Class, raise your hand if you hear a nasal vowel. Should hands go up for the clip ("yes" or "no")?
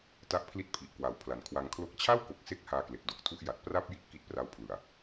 no